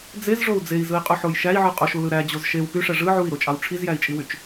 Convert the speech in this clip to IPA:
d͡zezʐou̯ d͡zei̯zɯi̯qʼuħoj ʃæi̯ʕɯ qʼoʃulɯ ɾæd͡ʑoz ʃew pyʂæ ʐɯ ʕui̯ɾot͡ʃʼɑw ʈ͡ʂʰizjæi̯t͡ʃʼiwyt͡ʃ

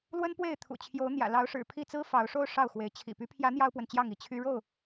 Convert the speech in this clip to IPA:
lwə˦npwe˥˨ɪ̯ t̪ʰṵ˨˩t͡ɕʰjo˨˦ʊ̯ n̪jä̰˨˩lɑ˨˦ʊ̯ʂɻ̩˨˩ pʰi˥˨t͡sɹ̩˦fɑ˨˦ʊ̯ʂo˦ʊ̯ ʂɑ˥˨ʊ̯xwe˨˦ɪ̯ t͡ɕʰḭ˨˩py˦pʰjä˨˦ n̪jɑ˦ʊ̯pwə˨nt͡ɕjɑ˥˨ŋi˨˦ t͡ɕʰy˦ ɻo˥˨ʊ̯

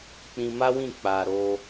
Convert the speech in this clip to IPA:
k͡pĩ˧ma˦wĩ˦˨ k͡pa˨ ɾo˧

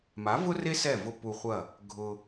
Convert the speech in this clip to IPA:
ma˨˦ vʊ˦re˦ sɛ˦˨ vʊ˧ pu˧χʷɐ˦˨ | ɡʱʊ˧

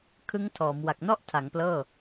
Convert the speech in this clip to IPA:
kʰɯ˦˥ŋtʰɔː˩˦m wa˨˩k̚nɔ˥˩ʔtʰa˩˦ŋ plɤː˥˩

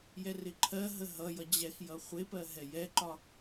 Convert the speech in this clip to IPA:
jɛrɪǃʰɜɦə ɦʌ jʌd͡ʑɛxjʌ χʷɪpɜ ɦɛjɛǃɒ

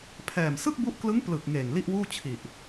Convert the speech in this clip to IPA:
pʰɛː˨˩m sɯ˥˩k̚bu˦˥ʔklɯ˦˥ŋ plɯ˨˩k̚ ŋeː˨˩ŋli˥˩ʔwuː˥˩ t͡ɕʰi˨˩ʔ

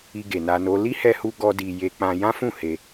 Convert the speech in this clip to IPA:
i˧ɡe˨na˧no˦ li˦hɛ˧hu˧ ɡɔ˦di˧ je˧k͡pã˧ jã˦fũ˦˨ he˧

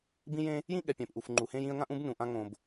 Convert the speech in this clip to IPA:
bĩ˥jẽ˥ | jĩ˥ɠɛ˩pʲɛ̃˩pʔu˩f ŋ͡ǃu˩hẽ˥jĩ˥ə̯ ŋã˥ʔũ˥b nũ˩ʔã˥ ŋõ˩b

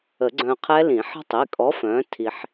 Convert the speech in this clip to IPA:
ə˨˩˦ɡ͡ǀœ̃˧qʰɛ˦˥lĩ˨˩˦ ħə̤˦˥tˤi˩˧˩kʼɔ˨˥ fœ̃˨˥tʰi˧ħ

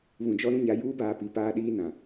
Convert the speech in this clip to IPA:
βũ˨d͡ʒɔ˦ ɾũ˦ɲa˨˦ juː˦baː˨pi˨ paː˦ɗiː˦ nã˨

